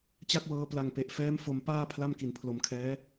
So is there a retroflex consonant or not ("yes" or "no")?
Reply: no